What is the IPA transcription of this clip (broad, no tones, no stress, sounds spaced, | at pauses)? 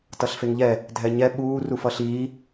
t ʌ ɬ f e ŋ ʎ ɛ | dʱ ɛ ɲ ɛ ɓ uː r u f ʌ ɬ iː